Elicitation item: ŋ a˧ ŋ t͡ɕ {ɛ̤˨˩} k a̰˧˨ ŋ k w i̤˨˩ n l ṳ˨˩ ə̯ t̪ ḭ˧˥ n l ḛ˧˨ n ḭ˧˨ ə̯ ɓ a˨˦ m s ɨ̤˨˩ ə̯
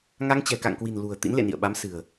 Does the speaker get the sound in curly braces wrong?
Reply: no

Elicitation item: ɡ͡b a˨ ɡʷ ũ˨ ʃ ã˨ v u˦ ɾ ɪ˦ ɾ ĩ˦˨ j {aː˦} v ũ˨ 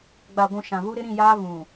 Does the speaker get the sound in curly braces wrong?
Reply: no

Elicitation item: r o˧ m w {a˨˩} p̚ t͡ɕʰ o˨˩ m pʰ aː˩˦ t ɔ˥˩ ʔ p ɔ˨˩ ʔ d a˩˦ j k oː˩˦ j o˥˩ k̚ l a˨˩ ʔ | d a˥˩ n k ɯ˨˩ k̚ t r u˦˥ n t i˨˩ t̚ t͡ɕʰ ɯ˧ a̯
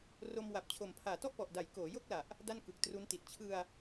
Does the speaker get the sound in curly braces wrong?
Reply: no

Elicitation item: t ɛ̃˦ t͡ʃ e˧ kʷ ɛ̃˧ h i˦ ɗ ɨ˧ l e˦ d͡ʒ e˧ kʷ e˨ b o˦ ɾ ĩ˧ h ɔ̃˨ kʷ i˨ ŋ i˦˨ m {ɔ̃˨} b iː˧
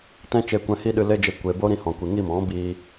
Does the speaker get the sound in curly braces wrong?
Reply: yes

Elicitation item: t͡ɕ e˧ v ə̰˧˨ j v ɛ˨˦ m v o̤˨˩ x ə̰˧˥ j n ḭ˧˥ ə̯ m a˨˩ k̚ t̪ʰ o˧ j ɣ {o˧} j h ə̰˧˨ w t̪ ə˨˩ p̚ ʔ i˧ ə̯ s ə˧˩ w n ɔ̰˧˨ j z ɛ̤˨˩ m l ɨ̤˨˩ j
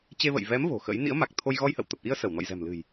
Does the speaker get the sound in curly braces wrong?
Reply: yes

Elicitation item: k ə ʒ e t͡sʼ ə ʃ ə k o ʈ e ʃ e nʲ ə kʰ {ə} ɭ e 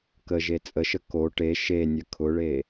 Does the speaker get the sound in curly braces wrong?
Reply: yes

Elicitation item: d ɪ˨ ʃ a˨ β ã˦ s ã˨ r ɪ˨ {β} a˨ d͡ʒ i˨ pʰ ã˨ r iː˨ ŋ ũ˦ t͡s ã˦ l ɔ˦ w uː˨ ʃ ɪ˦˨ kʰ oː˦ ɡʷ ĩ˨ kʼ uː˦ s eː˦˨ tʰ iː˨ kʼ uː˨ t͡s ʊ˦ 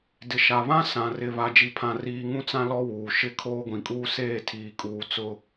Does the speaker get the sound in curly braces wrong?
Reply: no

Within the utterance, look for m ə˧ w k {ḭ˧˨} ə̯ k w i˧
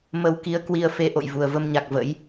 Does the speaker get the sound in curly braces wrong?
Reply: yes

